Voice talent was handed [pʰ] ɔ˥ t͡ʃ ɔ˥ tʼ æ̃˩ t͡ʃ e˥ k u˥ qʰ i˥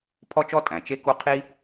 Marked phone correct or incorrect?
correct